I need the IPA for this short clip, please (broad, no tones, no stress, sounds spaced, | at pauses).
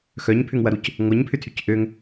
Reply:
x œ ɲ pʰ ʏ ŋ w ɐ ɾ u c | ŋʷ ɐ ɲ pʰ ʏ tʰ y c ʔ ø ŋ